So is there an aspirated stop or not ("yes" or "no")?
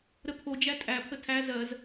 yes